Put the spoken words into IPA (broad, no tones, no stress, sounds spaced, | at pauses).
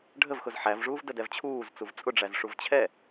ɖʱ ə v x ʊ z ħ æ v ʐ uː v d ə d ɛ v t͡ɕʰ uː z t͡s u v t͡sʼ ʊ ɖ͡ʐ æ z ʂ u v t͡ɕʰ ɛ